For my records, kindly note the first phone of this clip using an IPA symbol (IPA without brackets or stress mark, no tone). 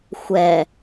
xʷ